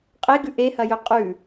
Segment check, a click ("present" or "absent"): absent